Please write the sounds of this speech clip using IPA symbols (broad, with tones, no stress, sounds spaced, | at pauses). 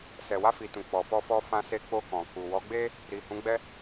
s ɛ˨ w a˧ f i˨ t ũ˨ k͡p ɔ˨ f ɔ˧ f ɔ˧ f ã˧ s e˧ k͡p o˧ k ɔ̃˨ k u˨ w ɔ˨˦ ɡ͡b e˦ | ɾ i˨ h ũ˨˦ ɡ͡b ɛ˧